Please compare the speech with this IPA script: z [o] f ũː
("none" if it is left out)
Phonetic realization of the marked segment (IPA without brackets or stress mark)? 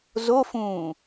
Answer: o